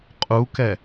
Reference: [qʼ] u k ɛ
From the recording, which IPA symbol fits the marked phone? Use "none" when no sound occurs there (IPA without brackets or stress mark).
qʼ